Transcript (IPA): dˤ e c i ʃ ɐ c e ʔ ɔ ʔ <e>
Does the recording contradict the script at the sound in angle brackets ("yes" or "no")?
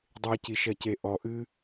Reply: yes